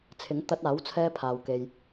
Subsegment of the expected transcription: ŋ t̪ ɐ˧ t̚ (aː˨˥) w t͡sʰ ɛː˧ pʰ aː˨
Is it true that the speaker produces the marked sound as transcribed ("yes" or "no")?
yes